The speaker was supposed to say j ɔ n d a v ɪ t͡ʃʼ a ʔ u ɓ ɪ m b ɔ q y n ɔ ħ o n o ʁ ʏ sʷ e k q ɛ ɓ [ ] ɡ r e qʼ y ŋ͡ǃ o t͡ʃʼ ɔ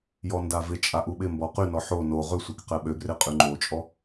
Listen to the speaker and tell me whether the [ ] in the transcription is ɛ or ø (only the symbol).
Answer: ø